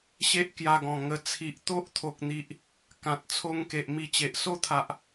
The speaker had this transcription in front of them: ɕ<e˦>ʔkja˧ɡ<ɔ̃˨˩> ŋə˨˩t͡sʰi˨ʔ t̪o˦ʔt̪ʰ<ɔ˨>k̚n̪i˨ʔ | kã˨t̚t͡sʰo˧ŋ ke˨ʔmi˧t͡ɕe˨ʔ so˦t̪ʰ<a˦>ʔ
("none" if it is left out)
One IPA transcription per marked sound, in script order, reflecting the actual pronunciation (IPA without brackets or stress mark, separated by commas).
e˦, ɔ̃˨˩, o˨, a˨